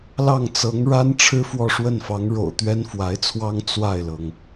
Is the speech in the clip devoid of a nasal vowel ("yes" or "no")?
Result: yes